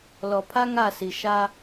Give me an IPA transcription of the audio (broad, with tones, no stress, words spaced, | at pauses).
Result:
lɔ˨ pʰa˦ŋa˦˨si˨ ʃa˦